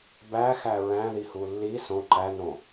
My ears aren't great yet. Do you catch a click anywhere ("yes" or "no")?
yes